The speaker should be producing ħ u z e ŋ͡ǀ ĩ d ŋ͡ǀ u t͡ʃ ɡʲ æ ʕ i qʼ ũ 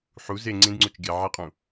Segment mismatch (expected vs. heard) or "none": none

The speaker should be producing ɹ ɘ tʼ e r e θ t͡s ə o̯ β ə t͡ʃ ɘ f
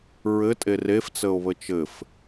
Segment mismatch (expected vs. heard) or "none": θ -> f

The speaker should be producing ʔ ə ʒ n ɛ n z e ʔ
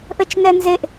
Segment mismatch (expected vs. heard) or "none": ʒ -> t͡ʃ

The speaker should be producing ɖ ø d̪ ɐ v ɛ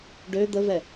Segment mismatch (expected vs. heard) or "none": ɐ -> ə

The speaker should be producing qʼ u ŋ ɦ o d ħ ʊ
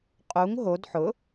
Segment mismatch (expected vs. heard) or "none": none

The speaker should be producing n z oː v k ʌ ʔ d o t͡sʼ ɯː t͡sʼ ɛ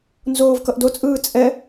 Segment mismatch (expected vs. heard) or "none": none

